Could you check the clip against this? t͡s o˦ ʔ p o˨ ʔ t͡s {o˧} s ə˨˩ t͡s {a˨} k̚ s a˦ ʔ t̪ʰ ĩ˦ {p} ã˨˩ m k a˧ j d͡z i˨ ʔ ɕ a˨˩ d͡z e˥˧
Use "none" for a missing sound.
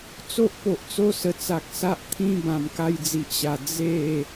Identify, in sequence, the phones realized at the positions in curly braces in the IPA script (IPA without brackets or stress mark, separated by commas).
o˧, a˨, b